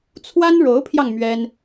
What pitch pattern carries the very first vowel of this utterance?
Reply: high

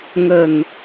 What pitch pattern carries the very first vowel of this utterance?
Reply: low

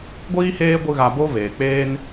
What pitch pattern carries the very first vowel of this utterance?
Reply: high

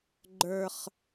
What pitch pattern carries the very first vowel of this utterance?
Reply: high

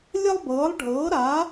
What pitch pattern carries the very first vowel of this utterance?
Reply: high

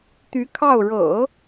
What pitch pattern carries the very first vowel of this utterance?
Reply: rising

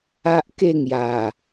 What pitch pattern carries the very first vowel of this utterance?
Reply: high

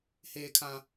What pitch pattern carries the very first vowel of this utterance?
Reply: low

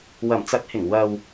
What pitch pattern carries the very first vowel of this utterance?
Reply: low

